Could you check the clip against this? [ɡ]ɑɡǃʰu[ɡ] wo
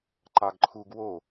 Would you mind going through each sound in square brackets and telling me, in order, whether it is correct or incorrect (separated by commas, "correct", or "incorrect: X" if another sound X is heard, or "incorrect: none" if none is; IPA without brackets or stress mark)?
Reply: incorrect: ǃ, correct